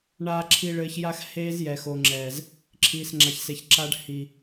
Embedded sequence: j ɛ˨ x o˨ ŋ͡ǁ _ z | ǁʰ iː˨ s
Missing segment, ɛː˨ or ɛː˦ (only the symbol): ɛː˨